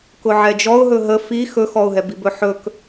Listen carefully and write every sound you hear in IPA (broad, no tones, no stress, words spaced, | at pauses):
kʊʕɛd͡ʒɔʊ̯ ɦɵɦə fi xɵxɔʊ̯ɦɛbi bɵħɵk